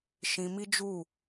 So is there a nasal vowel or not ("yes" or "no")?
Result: yes